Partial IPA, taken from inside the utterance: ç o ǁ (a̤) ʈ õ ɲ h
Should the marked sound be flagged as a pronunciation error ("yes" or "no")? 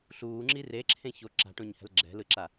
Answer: no